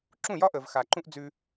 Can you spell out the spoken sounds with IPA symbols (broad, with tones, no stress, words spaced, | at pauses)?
ǁũ˦˨jɒ˦ʔəː˨v xa˨ǃũ˦ʔ d͡zʉ˧